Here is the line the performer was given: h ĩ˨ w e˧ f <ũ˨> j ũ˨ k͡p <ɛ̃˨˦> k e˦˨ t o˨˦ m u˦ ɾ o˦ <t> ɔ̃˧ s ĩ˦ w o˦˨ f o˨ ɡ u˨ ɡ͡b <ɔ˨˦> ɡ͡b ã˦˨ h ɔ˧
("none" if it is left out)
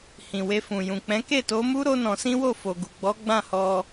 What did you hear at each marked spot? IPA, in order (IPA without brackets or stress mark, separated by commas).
ũ˨, ɛ̃˨˦, n, ɔ˨˦